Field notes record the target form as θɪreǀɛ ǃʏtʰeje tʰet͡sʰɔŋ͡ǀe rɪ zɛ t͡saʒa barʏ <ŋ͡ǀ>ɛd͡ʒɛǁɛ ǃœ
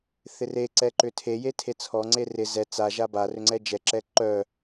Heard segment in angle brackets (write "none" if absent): ŋ͡ǀ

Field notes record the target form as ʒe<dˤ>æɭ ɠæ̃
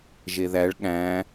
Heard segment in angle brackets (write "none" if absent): ð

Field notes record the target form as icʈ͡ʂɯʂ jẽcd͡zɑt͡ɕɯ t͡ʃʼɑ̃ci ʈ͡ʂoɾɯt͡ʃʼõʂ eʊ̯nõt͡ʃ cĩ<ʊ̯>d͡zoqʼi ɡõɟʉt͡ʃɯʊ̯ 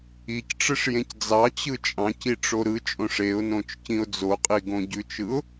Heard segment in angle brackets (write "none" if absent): ʊ̯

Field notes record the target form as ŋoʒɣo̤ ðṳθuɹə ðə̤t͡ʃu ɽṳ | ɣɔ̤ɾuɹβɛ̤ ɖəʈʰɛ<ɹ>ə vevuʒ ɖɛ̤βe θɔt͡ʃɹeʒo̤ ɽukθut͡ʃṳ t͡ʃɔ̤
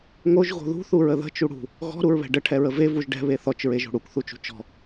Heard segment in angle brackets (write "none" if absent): ɹ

